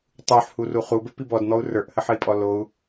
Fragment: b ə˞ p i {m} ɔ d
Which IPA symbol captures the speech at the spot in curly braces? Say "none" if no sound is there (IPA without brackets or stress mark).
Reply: b